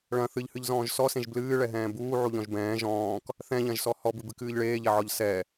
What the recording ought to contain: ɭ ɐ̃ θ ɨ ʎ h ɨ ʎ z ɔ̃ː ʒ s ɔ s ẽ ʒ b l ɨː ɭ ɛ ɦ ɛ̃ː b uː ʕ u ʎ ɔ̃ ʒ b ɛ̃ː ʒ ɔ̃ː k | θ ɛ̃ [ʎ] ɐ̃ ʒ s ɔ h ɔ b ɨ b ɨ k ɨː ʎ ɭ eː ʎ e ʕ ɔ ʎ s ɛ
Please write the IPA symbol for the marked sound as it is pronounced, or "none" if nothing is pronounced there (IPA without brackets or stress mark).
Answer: ʎ